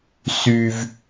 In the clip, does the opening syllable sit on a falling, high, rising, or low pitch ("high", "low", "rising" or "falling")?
high